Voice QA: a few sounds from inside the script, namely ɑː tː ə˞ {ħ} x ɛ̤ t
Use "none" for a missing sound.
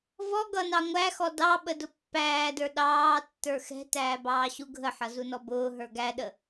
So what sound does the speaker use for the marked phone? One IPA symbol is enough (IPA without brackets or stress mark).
none